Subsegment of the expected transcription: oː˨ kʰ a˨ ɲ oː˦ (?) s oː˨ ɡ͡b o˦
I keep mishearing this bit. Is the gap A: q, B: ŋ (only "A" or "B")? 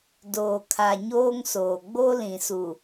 B